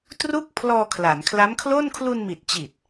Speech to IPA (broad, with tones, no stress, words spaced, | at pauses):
tru˥˩k̚ pʰlɔː˧kʰla˩˦nkʰla˦˥mkʰlo˥˩n kʰlu˧nmi˨˩t̚t͡ɕi˨˩t̚